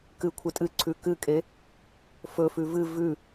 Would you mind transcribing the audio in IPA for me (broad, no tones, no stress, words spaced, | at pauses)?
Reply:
kɨkʷʰɨ tʼɨǀʰʉ kɨkʼe | fɵfʉ vɨ vʉ